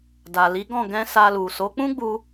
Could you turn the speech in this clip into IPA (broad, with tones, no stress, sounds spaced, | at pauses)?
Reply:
d a˨ l i˨˦ ɡ ɔ̃˦˨ ɡ ɛ̃˧ s a˧ l u˨ s o˨˦ k͡p ũ˦ ɡ͡b u˧